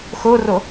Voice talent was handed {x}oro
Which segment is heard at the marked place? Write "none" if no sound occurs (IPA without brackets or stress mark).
x